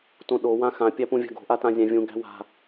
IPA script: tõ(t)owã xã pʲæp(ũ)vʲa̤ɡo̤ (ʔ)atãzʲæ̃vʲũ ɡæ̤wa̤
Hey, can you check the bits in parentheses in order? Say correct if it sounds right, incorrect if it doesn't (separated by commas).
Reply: incorrect, correct, correct